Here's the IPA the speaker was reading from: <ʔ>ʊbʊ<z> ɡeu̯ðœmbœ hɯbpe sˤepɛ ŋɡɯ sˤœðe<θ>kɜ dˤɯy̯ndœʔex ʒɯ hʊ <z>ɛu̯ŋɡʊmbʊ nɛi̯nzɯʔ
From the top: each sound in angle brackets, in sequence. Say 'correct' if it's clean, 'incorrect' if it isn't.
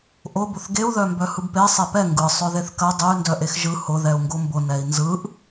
correct, incorrect: θ, correct, incorrect: ð

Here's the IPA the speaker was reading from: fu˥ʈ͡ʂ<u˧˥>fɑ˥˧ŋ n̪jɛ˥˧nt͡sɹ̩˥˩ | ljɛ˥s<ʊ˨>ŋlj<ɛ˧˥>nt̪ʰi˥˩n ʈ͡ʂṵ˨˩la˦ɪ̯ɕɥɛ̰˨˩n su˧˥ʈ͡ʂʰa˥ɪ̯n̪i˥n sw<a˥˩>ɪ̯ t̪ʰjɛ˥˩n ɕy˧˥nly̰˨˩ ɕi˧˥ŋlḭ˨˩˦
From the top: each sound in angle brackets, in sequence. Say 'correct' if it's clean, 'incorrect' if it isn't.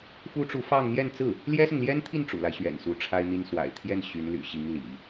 correct, correct, incorrect: ɛ˥, incorrect: a̰˨˩

